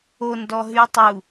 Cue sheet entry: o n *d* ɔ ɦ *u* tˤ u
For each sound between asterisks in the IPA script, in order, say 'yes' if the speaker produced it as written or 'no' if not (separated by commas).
yes, no